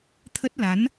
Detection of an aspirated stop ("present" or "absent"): present